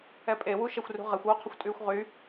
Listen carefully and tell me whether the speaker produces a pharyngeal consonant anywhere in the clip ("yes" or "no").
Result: no